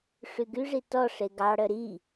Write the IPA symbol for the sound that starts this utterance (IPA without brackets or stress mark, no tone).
ʂ